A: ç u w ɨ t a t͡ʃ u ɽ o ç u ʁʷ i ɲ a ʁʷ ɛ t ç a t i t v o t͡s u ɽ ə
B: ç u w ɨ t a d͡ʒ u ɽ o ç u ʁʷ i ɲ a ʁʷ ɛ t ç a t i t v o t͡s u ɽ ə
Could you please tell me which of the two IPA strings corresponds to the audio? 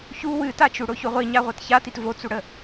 A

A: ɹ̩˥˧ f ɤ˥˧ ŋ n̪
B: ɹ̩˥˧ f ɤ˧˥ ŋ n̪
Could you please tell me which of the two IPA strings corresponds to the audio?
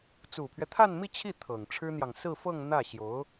A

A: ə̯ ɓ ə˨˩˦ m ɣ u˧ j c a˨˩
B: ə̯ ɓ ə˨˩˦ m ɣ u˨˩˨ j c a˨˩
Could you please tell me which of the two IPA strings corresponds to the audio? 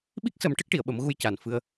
A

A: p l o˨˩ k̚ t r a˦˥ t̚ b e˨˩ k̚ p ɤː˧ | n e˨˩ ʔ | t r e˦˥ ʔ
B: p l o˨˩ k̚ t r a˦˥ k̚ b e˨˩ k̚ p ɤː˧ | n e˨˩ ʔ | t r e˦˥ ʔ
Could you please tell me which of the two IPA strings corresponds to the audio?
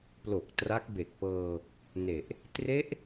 B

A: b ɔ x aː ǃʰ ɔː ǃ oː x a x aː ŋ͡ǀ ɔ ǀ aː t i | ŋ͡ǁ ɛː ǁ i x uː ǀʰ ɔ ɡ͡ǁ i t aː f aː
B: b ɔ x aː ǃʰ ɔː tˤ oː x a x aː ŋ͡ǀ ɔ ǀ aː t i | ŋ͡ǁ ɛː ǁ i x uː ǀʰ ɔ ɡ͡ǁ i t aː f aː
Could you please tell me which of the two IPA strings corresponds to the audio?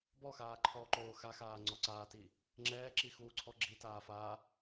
A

